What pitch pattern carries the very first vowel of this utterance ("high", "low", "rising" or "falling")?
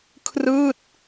falling